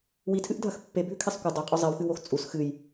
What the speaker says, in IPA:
witʰɨʔdʱɐx pːebʱʉkʰisˤ kʷɨ dˤaqʼɵ zˤiwxɨwox t͡sʼus xɨj

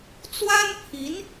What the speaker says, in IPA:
t͡swa˥npʰi˧˥n

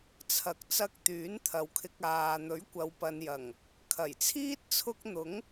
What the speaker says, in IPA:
t͡sʰɐ˨k̚ t͡sɐ˧k̚ t̪yː˨˥nt̪ʰɐ˨wkʰɪ˧k̚ aː˧ n̪ɵ˨˥ɥkʷɐ˨wpɐ˨njɐ˨˩ŋ | kʰɐ˨˩jt͡sʰiː˥t̚ t͡sʰʊ˥k̚ n̪ʊ˨˥ŋ

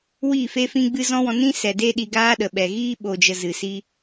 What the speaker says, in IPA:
wi˦˨fe˦fĩ˦ɡ͡bɨ˦ zɔ̃˦wɔ̃˧ nĩ˦sɛ˨ de˦ɗi˧ɡaː˦ ɗə˨ɓɛ˨ɣiː˦ ɓo˨d͡ʒə˨ zɨ˨si˧

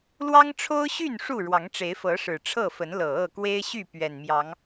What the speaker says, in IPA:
lwɑ˦ŋʈ͡ʂʰo˦ʊ̯ɕy˥˨n ʂu˥˨ɻwɑ˨˦ŋʈ͡ʂe˨˦ɪ̯fɤ˨˦ ʂɻ̩˨˩ʈ͡ʂʰɤ˥˨ fə˨˦nlɤ˨˩ɤ˥˨ kwe˦ɪ̯ɕy˥˨ pɥɛ˨˩nmjɑ˨˦ŋ

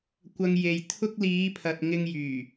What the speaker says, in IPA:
kʷɐ˨ŋ je˨jt̪ʰʊ˧k̚liː˨˧pʰɐ˨t̚ ŋɪ˧ŋjyː˨˩

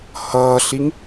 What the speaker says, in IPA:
hʌːɬiŋ

